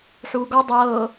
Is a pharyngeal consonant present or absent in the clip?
present